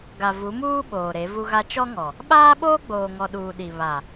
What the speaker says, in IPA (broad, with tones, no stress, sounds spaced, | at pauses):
ɡ a˨ v u˨˦ m uː˦ ɓ oː˨ ɾ e˨˦ v u˦ ɣ a˦ t͡ʃ ɔ˦ ŋ ɔ˨ | ɓ aː˦ ɓ oː˦ ɡ͡b oː˨ ŋ ɔ˨ ɗ uː˨ ɗ i˨ β a˨